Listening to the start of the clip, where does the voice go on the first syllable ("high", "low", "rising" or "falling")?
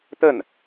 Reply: falling